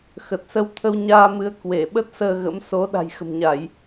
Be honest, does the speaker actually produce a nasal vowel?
no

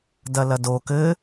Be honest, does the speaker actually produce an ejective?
no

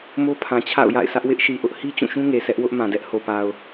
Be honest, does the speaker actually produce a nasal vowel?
yes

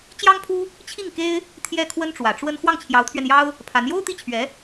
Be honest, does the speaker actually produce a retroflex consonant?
yes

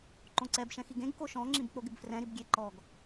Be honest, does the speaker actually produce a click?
yes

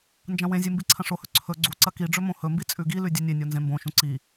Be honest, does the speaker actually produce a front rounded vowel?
no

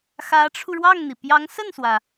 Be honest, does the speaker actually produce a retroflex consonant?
yes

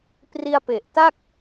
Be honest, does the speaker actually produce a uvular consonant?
no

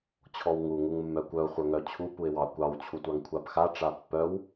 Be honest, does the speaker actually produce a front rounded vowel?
yes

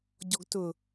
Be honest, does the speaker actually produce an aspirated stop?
no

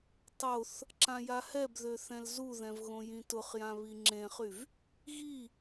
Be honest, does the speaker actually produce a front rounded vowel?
yes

